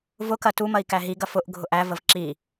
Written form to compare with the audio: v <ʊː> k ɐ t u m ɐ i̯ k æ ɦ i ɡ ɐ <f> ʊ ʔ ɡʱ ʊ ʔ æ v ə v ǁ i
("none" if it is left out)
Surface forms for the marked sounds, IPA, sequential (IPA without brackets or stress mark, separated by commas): ʊ, f